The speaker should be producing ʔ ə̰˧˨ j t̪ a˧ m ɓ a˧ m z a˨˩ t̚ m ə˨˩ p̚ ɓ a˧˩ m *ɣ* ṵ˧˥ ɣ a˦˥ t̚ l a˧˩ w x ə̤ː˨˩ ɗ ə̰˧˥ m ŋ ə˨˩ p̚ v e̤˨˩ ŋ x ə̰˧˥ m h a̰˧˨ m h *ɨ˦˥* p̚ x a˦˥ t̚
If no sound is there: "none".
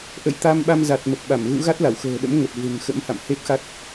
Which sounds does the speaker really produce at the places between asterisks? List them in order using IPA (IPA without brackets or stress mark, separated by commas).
ɣ, e˦˥